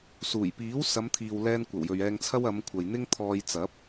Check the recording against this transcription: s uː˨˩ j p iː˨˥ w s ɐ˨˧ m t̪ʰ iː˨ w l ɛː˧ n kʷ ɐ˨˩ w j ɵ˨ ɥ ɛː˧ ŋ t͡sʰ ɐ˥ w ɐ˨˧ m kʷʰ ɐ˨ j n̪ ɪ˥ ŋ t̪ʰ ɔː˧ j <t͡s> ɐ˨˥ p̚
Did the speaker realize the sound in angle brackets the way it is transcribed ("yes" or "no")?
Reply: yes